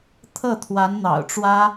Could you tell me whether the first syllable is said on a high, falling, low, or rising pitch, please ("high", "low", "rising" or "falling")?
falling